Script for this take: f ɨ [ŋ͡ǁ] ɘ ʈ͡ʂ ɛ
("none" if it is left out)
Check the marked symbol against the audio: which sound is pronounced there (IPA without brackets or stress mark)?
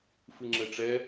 ŋ͡ǁ